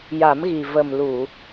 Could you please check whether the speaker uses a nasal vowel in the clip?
no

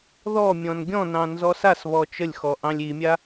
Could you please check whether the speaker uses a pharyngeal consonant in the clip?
no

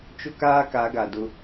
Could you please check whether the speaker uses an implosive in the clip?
no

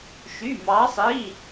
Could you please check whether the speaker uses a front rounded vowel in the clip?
yes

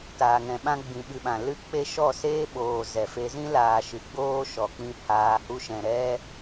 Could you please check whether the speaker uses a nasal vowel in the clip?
yes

